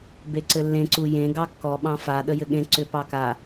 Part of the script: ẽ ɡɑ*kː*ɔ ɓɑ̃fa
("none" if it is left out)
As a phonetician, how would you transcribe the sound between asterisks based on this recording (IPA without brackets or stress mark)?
kː